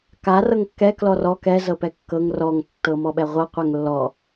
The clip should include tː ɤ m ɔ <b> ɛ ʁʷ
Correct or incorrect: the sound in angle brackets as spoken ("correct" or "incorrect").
incorrect